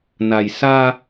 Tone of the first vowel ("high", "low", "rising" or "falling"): low